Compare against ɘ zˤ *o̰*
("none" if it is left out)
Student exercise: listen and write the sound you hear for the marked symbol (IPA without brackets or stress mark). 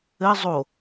o